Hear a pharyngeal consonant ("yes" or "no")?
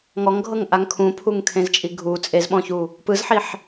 yes